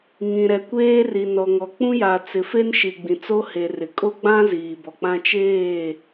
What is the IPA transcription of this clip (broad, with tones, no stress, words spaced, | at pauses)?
ŋĩ˨ɾɛ˨kʷeː˦ri˨ nɔ˨ŋɔ˨k͡pũ˦ja˨ t͡sɪ˨fe˦nʃi˨ ɡ͡bĩ˨t͡so˦ he˨rɪ˨ kʼo˦ɡ͡bã˦ ziː˨bɔ˨k͡pã˦ t͡ʃeː˦˨